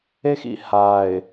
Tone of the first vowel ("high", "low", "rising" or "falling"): high